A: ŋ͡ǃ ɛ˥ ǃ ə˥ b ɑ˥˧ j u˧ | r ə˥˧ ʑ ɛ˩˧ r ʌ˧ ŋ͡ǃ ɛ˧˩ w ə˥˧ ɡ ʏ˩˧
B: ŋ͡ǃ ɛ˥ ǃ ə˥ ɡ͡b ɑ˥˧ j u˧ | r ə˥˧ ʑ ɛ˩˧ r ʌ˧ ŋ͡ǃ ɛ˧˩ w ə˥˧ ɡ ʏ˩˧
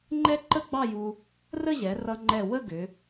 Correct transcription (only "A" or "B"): B